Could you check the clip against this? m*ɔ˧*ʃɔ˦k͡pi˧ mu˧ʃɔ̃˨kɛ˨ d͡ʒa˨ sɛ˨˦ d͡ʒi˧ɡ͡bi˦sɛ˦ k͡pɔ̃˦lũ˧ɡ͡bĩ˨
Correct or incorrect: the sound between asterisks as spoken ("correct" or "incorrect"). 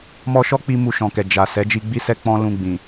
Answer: correct